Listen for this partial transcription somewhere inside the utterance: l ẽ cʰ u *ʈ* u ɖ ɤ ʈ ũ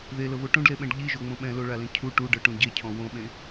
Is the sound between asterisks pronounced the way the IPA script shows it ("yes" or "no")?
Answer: yes